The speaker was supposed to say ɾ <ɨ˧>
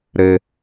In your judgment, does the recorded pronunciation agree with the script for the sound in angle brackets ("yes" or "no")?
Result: no